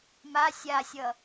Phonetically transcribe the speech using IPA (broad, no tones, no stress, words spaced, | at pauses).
ma sʲasʲʌ